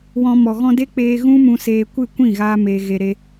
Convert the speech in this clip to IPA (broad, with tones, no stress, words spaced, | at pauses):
wɔ̃˧ mɔ˨ɣɔ̃˧de˦k͡peː˧ ɣũ˦mũ˧seː˧kʷɨ˦˨ kʷĩ˦˨ɣaː˧ meː˧ɣe˧ ɾe˧